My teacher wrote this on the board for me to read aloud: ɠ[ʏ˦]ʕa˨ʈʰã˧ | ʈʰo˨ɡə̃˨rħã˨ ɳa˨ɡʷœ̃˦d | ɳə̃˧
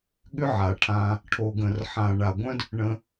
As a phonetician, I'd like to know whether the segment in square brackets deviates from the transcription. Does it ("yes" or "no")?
no